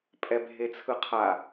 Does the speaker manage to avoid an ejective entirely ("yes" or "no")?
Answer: no